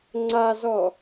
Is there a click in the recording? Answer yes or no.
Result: yes